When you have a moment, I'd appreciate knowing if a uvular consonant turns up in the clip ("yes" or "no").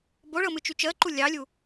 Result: no